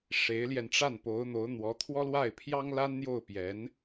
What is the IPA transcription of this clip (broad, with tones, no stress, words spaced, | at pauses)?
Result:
ʂe˧˥ɪ̯ljɛ˧nʈ͡ʂa˥˩n po˧˥ʊ̯n̪o˧˥ʊ̯n̪wɔ˧˥ t̪ʰwɔ˥lwa˥˩ɪ̯pʰjɑ˥ŋ la˥nn̪jo˥˩ʊ̯ pjɛ˧˥n